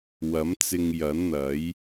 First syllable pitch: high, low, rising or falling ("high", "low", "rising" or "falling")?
rising